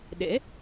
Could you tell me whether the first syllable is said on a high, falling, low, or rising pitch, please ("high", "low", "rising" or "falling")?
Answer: rising